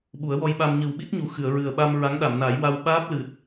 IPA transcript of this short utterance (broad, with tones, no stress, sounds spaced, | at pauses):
ɓ u˨˩˦ ə̯ w ɔ˧ j ɓ a˧ m ɲ ɨ˨˩ w ɓ i˦˥ t̚ ɲ u˨˩ x ɨ˨˩˨ ə̯ ɹ ɨ˨˩ ə̯ ɓ a˧ m ɹ a˧˥ ŋ ɗ a˨˩˨ m n a˨˩˦ j w a˧ w ɓ aː˦˥ p̚ l ɨ˨˩ t̚